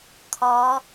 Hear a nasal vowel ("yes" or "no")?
no